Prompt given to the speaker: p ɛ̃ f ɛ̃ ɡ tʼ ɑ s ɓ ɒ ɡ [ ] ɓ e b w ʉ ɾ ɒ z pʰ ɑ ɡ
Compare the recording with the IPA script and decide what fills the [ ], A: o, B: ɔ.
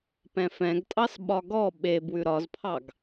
B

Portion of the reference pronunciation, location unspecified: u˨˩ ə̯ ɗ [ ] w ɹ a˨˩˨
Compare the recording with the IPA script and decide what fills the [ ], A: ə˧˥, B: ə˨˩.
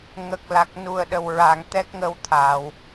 B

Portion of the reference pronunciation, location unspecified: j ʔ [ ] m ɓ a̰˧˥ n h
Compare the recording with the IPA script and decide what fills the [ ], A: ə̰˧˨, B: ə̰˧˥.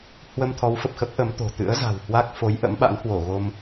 B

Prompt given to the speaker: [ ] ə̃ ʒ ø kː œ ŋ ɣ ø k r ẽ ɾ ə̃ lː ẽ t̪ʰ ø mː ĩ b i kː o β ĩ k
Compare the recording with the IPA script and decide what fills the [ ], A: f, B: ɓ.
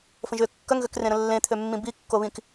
A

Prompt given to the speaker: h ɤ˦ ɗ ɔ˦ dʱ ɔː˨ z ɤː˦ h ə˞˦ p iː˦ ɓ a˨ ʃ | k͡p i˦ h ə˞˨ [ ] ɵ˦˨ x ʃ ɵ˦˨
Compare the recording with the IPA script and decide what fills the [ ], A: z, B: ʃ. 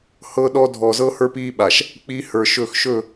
B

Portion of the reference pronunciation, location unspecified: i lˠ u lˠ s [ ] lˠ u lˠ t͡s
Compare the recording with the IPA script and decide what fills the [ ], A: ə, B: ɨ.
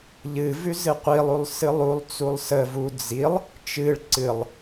B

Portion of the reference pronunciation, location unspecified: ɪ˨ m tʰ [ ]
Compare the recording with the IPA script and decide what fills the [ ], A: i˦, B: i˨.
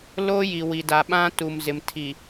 B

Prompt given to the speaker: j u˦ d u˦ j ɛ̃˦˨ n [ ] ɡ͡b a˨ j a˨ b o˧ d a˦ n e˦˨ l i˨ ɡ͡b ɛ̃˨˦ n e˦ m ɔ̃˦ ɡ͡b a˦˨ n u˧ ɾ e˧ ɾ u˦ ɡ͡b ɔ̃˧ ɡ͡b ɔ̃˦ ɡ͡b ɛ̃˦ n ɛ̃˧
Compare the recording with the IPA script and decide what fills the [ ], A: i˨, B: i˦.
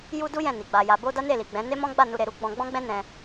A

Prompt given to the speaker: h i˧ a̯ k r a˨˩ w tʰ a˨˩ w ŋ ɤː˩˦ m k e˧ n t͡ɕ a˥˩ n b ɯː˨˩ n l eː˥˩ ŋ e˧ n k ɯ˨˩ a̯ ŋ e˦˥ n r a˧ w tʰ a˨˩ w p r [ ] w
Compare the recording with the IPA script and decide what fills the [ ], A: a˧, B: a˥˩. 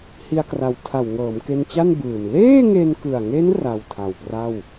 B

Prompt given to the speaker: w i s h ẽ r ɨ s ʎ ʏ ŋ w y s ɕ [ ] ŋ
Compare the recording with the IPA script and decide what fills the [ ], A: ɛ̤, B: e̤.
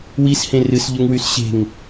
B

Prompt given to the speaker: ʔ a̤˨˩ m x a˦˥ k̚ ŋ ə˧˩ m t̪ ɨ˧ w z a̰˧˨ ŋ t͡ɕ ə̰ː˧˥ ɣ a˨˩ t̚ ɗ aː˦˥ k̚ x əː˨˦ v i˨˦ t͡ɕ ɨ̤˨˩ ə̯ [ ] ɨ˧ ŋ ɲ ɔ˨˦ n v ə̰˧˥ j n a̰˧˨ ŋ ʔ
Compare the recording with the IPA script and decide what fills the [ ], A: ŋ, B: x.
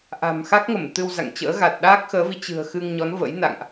B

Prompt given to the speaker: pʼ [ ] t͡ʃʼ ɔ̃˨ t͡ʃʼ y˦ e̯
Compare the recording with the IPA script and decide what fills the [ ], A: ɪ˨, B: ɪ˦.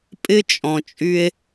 B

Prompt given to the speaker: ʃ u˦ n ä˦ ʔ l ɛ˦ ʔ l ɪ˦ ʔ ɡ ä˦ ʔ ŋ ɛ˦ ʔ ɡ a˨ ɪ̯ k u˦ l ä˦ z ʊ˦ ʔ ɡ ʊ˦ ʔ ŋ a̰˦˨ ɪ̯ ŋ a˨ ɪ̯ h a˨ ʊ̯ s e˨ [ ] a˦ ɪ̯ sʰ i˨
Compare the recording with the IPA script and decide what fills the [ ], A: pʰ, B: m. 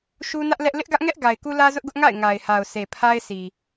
A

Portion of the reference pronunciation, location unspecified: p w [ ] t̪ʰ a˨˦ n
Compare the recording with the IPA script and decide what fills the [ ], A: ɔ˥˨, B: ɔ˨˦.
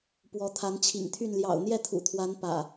B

